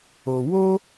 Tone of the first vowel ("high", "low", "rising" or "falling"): low